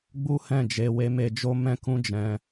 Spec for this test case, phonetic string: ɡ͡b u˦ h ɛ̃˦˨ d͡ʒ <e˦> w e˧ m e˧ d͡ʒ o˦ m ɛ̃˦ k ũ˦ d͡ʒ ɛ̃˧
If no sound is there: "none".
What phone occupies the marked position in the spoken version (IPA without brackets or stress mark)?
e˧